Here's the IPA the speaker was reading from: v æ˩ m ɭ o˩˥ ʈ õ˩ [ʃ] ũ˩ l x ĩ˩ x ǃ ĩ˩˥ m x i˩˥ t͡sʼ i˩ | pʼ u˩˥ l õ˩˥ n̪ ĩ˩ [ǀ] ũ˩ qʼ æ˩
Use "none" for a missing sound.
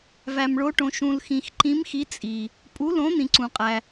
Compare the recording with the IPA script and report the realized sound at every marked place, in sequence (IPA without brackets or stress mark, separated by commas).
ʃ, ǀ